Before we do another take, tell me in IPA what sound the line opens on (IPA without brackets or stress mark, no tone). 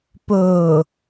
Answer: p